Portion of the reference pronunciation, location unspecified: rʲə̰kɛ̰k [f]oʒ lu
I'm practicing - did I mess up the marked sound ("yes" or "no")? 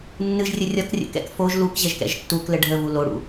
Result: no